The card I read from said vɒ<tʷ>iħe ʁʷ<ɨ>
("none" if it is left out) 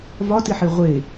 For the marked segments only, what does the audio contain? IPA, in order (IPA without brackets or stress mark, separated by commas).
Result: t, e